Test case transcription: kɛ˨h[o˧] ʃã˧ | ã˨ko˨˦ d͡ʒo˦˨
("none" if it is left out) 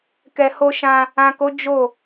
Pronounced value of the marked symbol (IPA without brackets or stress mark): o˧